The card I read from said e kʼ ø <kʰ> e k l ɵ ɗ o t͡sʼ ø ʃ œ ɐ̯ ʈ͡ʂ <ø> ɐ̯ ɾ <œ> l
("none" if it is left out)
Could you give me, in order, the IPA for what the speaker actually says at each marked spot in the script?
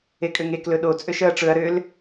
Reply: ŋ, ɵ, ø

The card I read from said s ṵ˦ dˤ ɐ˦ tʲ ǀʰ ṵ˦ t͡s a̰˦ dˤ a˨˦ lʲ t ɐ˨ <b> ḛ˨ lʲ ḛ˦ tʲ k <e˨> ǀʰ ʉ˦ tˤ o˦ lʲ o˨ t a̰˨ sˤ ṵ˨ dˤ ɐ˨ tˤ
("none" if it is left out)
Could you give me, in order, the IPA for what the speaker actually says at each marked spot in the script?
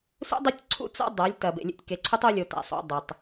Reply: b, e˨

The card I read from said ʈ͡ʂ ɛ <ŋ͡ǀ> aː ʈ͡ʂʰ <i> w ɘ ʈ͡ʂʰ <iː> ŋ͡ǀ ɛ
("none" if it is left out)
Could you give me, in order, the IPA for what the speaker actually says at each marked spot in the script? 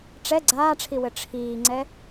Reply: ɡ͡ǀ, i, iː

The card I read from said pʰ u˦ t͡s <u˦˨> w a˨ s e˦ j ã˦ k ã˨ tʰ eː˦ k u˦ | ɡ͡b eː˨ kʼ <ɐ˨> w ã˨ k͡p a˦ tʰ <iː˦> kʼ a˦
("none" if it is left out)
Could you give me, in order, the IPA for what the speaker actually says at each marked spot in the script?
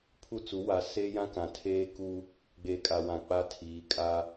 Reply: u˨˦, a˨, iː˨˦

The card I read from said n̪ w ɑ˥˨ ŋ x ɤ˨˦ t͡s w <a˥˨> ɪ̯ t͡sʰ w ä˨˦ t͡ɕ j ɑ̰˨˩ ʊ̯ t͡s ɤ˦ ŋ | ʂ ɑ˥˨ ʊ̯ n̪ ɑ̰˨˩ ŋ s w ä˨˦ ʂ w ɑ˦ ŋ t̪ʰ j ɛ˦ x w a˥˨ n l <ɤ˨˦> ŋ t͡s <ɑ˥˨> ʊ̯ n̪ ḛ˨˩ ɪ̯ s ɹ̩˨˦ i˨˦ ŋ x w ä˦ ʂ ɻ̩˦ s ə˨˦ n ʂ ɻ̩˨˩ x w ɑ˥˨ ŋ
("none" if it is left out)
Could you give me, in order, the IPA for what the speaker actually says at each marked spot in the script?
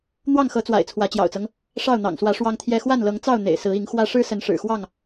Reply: a̰˨˩, ɤ˨˦, ɑ˥˨

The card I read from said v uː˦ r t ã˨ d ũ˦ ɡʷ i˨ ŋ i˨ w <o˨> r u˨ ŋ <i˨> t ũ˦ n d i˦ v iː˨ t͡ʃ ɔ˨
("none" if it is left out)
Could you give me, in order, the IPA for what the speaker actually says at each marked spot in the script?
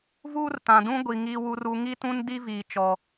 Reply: u˨, i˦

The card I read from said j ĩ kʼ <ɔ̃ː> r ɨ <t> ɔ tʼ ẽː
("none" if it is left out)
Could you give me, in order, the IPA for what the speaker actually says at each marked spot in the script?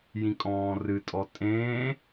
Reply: ɔ̃ː, tʼ

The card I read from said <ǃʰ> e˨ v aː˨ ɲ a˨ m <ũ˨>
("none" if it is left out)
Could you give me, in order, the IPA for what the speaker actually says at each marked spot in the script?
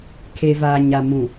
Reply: kʰ, ũ˨

